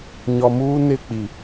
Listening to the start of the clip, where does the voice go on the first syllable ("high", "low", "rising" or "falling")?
low